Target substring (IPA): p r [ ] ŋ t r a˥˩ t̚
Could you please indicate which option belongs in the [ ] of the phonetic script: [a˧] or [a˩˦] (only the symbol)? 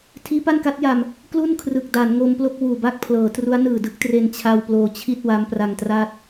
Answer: a˧